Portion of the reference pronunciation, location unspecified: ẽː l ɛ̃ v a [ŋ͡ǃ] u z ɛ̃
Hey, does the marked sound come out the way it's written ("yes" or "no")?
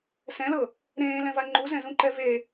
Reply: yes